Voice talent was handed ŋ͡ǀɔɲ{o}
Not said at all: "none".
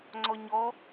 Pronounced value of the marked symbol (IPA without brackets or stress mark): ɔ